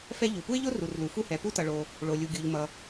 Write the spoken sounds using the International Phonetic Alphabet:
fɛ˥ ʎu˩pu˥ɪ̯ʎo˥ ru˩rlu˩fu˥ hɛ˩ pu˥ tʌ˩ɭo˩ | ɭo˩lʲu˩ɡʲu˩ʎmʌ˩

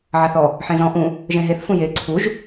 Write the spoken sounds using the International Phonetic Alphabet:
ʕaθɔ | ħẽzɔ̃ ʔũ | ʒẽɦeθ fũje ǀʰuʒ

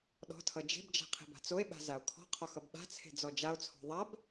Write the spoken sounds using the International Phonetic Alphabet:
ɗɔ̤tʰʌ d͡ʒe̤bd͡ʒa̤ qʰe̤ba̤t͡soe̯ɓa̤ zao̯kʰɔ̤qʰɒx ʌbɓa̤t͡sʰe̤ d͡zɔd͡ʒao̯t͡sʰɔ̤ ðˤab

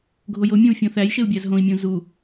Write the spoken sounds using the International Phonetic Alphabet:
ɡʱojomʲõu̯ fʲõθæjʃeu̯ bʲæzɦõi̯mʲũ zu

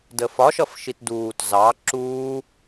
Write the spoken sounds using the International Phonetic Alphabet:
dəfɒ ʃʌfʃitduːt zɑ ǁuː

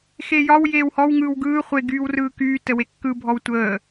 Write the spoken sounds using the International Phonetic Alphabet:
xejɒw jeːwhɔw ŋɯːwɡɯː χʷe ɡyːwrɯːkyː təwekːɯ bʱɔwtʷəː

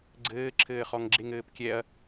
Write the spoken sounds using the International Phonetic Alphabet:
ɡ͡ǀɘːǁʰɘːχɔŋ ɡ͡ǁeŋɘːpkʲɛɐ̯

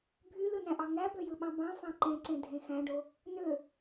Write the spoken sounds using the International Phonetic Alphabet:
bʱylɯnæ̃ʔɑ ŋæbøjɯɓɑ̃ bɑ̃fɑ̃ ǃẽǀẽdʱẽ xæ̃ɖo | nø

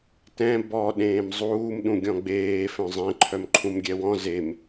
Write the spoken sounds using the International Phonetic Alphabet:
tɛ̃ bɔ ɗẽːmzˤuːm ɗũɡʲɔ̃ɡ͡beː fœ̃zˤẽ ǃʰœmǃʰũmɡʲɛwɔ̃ zem

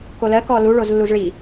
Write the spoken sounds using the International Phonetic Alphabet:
kolɜ kɔlu ɭozlːuzɭi

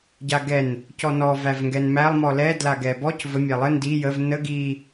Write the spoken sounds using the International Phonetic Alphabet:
ɟaɡɛn | cɔnɔ vævŋɡɛnmælˠ mɔlɛ dlaɡɛbɔc və mʲælˠə ndi jəv nə ɡi

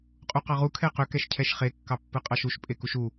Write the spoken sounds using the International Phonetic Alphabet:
qʼuqɑʁu kʰɛqʏ kɛʃcʰɛʃχe kːɑpːɯqʼɑʃuʃ pʼekuʃu

